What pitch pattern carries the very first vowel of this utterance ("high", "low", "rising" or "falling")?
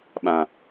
low